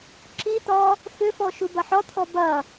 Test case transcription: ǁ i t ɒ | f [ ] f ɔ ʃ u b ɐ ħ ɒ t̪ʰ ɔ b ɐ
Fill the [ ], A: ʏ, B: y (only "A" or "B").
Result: A